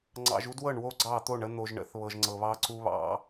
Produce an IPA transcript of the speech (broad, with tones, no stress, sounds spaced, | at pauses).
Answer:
ŋ͡ǀ ɑ̰˨ ʒ u˦ d w ɤ˦˨ ɳ w o˦ ɡ͡ǀ ɑ˦˨ t̪ o˦˨ ɳ ə˦ n̪ o˨ ʒ ɳ ə̰˨˦ θ β ɤ˨ ʒ ŋ͡ǀ ɤ˨ β ɑ˦ ǀ u˦ β ɑ̰˦